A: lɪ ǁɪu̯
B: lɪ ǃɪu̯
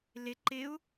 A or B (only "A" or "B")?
B